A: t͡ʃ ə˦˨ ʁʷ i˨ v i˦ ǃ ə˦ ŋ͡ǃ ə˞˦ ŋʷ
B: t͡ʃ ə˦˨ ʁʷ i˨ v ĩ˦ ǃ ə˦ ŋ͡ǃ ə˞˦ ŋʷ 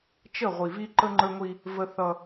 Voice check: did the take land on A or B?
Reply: A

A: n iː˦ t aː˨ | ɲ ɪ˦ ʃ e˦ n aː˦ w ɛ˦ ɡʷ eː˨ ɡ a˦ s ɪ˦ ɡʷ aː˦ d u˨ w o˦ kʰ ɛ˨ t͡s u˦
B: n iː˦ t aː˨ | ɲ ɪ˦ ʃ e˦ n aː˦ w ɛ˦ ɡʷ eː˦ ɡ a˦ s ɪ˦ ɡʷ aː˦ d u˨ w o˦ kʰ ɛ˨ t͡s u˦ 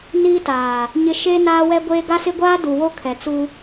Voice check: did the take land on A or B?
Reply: B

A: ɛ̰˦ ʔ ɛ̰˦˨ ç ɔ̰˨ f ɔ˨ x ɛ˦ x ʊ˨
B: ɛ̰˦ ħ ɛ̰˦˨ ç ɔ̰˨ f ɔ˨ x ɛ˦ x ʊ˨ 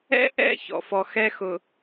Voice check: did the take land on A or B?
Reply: A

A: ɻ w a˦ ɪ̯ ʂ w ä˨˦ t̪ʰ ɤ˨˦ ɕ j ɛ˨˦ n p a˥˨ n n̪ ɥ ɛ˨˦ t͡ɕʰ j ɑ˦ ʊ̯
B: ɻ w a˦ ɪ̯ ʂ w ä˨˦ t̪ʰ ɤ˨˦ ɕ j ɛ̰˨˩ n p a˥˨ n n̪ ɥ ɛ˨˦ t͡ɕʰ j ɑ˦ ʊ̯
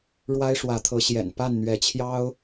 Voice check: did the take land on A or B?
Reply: B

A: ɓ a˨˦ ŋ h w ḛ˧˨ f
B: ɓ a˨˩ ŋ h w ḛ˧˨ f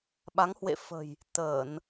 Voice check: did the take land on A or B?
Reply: A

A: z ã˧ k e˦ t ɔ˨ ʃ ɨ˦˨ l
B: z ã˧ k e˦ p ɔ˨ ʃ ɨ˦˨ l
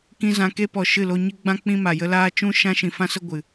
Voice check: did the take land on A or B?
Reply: B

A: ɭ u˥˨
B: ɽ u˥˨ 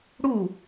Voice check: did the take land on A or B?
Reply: B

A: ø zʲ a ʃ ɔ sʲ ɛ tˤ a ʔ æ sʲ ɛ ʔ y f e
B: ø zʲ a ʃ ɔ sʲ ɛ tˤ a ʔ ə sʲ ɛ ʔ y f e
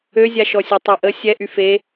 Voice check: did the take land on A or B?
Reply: B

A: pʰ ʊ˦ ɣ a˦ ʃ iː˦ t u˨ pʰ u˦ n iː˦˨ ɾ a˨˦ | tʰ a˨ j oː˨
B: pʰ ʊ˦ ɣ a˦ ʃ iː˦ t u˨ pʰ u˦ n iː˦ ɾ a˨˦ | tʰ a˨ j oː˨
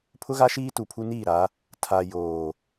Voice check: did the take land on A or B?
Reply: A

